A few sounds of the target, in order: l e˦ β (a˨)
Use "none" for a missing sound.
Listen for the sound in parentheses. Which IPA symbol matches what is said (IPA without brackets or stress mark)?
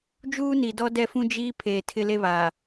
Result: a˨